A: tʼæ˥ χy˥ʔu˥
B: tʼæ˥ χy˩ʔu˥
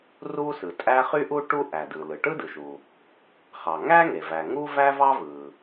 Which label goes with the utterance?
A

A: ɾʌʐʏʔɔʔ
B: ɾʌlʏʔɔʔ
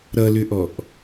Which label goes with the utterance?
B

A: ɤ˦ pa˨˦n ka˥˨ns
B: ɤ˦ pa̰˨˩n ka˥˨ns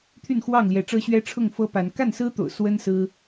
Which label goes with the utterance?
A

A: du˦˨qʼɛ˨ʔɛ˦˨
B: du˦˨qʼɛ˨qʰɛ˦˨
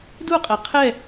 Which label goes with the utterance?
B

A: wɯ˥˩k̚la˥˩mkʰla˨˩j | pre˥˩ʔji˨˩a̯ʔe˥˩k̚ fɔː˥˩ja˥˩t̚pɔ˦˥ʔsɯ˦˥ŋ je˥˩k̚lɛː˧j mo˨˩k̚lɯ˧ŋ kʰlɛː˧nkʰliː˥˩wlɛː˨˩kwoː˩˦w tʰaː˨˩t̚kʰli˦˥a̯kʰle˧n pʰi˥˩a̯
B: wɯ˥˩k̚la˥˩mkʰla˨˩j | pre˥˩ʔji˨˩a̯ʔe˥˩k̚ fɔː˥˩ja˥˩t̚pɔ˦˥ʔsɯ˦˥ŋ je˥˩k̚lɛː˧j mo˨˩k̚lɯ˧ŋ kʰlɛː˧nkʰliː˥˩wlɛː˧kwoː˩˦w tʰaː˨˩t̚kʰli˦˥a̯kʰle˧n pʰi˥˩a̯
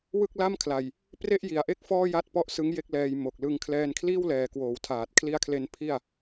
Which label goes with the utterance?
A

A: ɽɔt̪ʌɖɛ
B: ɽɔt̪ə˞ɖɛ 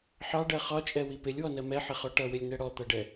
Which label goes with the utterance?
A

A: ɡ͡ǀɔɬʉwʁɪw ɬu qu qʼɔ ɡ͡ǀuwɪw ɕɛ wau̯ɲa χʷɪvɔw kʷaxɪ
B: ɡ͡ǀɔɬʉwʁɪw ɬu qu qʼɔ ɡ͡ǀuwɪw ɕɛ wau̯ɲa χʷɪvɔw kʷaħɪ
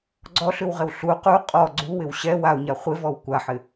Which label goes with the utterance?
B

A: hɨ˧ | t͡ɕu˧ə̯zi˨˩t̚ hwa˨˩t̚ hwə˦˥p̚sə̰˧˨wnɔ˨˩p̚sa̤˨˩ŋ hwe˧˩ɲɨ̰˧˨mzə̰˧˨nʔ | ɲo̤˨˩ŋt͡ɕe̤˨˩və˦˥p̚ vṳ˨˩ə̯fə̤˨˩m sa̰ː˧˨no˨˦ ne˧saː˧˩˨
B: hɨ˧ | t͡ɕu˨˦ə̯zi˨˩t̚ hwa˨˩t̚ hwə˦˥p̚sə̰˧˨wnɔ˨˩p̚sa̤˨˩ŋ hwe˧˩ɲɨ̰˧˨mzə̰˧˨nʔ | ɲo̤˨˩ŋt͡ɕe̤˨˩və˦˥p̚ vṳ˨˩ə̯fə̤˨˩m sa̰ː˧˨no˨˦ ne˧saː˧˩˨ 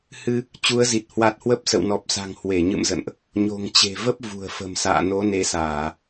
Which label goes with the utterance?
B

